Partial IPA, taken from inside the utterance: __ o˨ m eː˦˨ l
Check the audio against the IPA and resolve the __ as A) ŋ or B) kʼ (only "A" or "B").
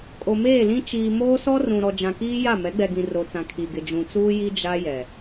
B